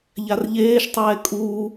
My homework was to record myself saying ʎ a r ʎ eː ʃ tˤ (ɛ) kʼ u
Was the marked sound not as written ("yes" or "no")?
yes